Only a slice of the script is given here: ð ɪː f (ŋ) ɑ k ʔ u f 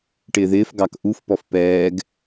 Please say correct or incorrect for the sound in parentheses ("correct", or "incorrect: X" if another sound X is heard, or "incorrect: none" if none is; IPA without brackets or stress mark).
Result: incorrect: ɡ